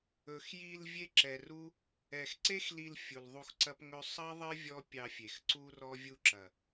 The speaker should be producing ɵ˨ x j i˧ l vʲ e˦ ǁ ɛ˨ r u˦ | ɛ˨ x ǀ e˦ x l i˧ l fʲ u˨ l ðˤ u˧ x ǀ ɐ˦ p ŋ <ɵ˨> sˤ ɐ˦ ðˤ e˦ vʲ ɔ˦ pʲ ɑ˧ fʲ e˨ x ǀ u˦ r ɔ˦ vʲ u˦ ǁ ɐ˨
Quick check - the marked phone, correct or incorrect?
incorrect